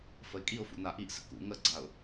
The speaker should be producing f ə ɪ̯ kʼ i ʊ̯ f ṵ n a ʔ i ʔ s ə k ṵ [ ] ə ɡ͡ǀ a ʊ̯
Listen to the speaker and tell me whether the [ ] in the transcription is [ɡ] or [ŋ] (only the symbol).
ŋ